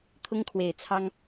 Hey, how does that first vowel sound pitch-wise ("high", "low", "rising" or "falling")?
high